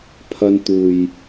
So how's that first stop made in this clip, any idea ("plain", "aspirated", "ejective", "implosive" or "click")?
aspirated